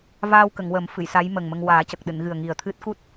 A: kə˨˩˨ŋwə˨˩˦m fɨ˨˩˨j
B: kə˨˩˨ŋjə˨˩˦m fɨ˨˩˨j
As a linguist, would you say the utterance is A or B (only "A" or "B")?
A